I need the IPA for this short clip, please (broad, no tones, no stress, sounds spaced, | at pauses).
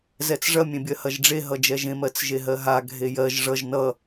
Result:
z ɛ t͡s ʐ ɐ mʲ ẽ bʲ ɜ h ɐ ʒ ɖ͡ʐ e ɦ ʌ d͡ʒ ɛ ʒ ẽ m ɜ t͡s ʒ e ɦ ɜ ɦ a ɡʱ e j ɜ ʒ ʐ ʌ ʒ n ʌ